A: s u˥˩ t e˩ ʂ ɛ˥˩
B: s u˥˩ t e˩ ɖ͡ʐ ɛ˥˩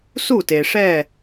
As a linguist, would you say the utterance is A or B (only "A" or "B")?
A